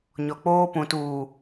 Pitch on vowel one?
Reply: low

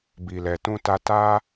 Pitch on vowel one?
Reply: low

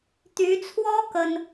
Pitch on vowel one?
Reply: rising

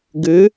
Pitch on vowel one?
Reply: rising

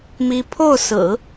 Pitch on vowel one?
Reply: high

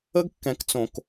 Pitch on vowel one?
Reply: high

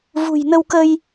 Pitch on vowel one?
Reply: low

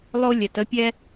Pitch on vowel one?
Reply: high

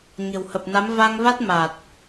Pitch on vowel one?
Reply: low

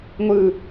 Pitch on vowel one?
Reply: falling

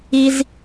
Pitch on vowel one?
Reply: high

